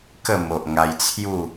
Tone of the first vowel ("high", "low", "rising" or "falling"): falling